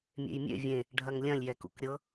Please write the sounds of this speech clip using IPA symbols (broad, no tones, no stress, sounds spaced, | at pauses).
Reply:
mʲ ḛ j mʲ ḛ vʲ ẽ | ɖʱ ɐ ŋ lʲ ɐ̃ lʲ j ɛ k ṵ k ɾʲ ɤ